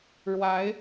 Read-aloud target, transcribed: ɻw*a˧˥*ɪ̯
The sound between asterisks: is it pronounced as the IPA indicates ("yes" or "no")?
yes